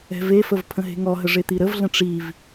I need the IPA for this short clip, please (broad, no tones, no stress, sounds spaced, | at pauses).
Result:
ɛ̤ v e f ə v pʰ ə̃ ɦ e̤ ŋ ɔ ɦ ə ʐ e t̪ i ɾ ə v ɮ ə̃ ʈ͡ʂ i v